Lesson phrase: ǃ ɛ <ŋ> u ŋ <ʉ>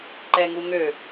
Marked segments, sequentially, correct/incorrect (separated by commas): correct, incorrect